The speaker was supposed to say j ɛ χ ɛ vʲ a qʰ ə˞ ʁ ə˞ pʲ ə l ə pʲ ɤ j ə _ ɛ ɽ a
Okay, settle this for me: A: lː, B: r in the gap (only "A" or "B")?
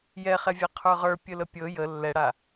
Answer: A